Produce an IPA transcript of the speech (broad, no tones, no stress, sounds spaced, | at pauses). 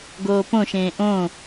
ɡ oː p õ ʃ ẽː ʔ õ